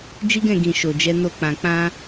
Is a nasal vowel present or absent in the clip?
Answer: present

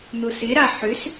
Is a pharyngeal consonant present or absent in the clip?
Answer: present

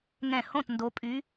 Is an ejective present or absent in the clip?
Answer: present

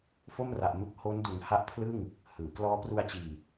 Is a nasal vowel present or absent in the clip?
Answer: absent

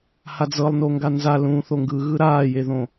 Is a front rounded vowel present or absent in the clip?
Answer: absent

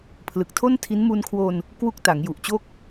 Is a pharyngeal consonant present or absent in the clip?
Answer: absent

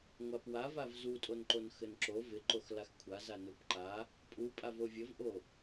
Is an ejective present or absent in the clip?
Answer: present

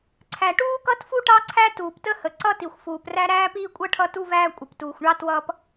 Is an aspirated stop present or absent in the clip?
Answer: present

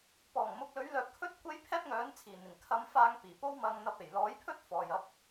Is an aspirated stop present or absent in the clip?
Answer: present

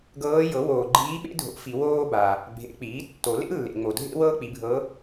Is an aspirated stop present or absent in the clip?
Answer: absent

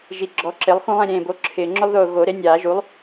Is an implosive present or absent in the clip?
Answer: absent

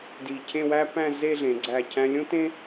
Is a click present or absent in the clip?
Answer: present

